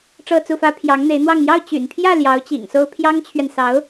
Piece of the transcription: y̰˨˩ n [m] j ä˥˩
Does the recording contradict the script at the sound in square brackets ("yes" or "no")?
yes